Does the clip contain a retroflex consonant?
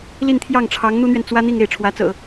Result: yes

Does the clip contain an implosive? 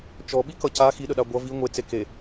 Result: yes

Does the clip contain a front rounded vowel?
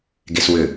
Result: yes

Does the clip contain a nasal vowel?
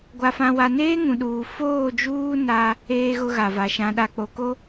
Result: yes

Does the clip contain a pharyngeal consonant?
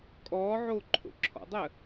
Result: yes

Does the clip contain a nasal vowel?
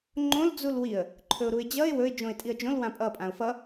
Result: yes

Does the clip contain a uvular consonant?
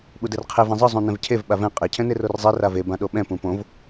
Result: yes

